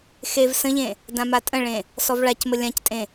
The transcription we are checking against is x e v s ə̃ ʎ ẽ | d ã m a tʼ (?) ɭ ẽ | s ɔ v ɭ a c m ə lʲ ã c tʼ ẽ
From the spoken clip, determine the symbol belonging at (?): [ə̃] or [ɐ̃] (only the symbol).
ə̃